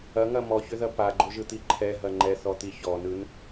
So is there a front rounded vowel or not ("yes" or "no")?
yes